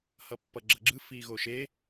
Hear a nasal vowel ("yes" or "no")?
no